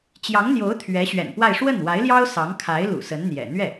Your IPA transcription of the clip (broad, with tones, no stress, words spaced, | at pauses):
t͡ɕjɑ˧˥ŋn̪jo˧˥ʊ̯ t̪ʰɥɛ˧˥ɕɥɛ̰˨˩npwa˥˧ɪ̯ ʂwə˥˩nwa˧˥ɪ̯ljɑ˥ʊ̯ sɑ˧˥ŋkʰa˧˥ɪ̯ lṵ˨˩sə˧˥nn̪jɛ̰˨˩ n̪ɥɛ˥˩